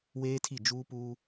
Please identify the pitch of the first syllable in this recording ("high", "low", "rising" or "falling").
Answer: high